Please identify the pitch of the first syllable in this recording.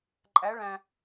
rising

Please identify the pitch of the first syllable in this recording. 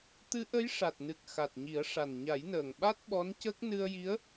rising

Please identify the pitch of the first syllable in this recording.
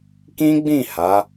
high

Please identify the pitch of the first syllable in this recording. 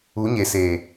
rising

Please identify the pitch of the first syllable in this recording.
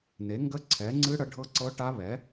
rising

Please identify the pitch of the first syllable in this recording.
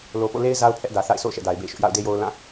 low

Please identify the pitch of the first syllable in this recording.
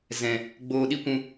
low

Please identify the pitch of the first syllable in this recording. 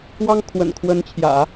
high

